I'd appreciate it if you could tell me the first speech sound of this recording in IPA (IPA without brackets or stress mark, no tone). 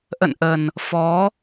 ʔ